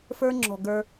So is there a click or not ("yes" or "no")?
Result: yes